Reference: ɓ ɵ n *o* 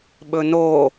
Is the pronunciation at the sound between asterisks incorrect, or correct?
correct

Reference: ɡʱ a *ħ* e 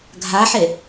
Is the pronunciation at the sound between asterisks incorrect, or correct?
correct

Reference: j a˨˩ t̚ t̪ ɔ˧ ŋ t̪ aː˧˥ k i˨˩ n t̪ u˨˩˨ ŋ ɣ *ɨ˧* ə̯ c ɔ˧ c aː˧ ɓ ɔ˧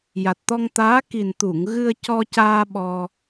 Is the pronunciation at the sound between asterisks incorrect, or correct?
correct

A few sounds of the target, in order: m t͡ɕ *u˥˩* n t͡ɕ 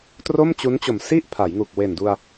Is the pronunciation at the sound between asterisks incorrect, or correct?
incorrect: u˦˥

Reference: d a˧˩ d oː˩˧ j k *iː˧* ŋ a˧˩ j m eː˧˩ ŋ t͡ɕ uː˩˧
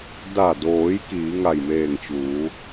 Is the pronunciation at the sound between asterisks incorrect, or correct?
incorrect: iː˩˧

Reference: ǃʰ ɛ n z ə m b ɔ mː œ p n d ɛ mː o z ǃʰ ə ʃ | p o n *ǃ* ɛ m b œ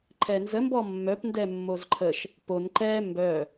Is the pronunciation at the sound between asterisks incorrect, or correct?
correct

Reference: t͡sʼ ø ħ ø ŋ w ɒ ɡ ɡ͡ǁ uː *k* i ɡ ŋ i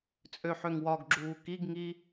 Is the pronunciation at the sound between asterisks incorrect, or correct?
correct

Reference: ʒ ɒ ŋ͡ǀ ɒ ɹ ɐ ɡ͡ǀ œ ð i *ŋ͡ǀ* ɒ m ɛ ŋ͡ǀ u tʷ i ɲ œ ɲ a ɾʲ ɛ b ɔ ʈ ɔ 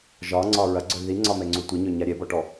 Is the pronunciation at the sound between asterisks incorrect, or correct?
correct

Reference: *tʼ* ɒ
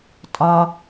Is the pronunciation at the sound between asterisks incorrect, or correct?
correct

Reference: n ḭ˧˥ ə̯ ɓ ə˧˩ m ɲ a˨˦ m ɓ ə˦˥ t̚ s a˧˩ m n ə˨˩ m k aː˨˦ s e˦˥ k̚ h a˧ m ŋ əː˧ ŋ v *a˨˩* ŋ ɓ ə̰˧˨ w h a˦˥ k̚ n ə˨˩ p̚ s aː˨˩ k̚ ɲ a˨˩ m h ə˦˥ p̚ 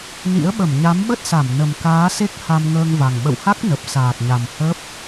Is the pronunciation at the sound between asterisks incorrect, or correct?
correct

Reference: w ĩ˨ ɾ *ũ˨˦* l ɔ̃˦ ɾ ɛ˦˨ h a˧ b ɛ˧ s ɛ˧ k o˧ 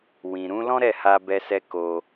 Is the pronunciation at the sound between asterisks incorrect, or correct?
correct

